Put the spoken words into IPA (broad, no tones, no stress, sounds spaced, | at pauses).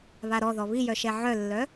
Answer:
β a ɾ ɔ ð ɔ β i j œ ʃ ɛ ʕ œ lː œ